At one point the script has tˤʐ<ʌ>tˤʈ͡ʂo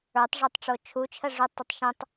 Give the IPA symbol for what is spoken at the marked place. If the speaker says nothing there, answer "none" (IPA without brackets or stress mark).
ə˞